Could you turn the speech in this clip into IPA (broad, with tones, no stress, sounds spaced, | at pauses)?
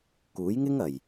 k uː˨˥ j ŋ ɪ˥ ŋ ɐ˨˩ j